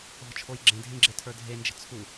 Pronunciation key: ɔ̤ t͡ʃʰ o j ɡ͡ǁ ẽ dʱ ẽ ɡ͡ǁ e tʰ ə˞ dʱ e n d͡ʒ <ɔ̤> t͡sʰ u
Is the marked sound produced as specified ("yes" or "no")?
no